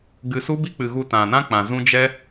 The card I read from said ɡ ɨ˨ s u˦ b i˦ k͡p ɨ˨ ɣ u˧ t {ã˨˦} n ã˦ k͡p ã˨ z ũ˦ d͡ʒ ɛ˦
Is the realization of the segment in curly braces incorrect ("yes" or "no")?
yes